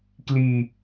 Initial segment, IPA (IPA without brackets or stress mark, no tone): k